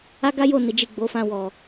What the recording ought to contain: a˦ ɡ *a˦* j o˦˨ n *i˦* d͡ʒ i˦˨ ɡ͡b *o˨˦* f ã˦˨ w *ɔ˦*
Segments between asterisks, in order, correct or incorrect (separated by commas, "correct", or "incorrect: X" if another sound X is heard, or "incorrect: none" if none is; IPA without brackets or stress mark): correct, incorrect: i˨˦, correct, incorrect: ɔ˨